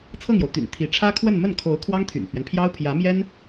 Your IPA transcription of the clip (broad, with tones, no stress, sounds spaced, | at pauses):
t͡sʰ ɤ˥˩ ŋ j o˩ ʊ̯ t̪ y̰˨˩ n t̪ʰ i˧˥ ʈ͡ʂʰ ä˥ kʰ w ə˥˧ n m ə˥˩ n kʰ o˧˥ ʊ̯ kʰ w ɑ˥ ŋ t̪ʰ y̰˨˩ n pʰ ɥ ɛ˦ n pʰ j ɑ˥ ʊ̯ pʰ j ä˧˥ m j ɛ˥ n